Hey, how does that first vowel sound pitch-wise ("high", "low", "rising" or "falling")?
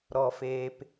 low